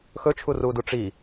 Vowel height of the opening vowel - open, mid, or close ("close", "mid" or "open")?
mid